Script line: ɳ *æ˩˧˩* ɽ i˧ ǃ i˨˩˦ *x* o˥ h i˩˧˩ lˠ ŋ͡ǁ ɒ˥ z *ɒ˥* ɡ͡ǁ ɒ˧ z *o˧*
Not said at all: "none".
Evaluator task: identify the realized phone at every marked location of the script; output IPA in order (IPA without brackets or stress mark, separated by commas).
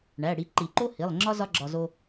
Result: æ˩˧˩, ǃ, ɒ˥, o˧